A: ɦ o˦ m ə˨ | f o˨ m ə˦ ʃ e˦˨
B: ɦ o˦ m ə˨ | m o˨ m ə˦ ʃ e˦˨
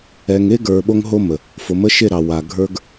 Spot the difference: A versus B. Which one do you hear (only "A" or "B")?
A